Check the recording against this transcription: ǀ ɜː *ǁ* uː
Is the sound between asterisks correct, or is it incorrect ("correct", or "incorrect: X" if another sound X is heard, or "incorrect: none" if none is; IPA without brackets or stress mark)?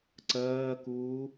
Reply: incorrect: k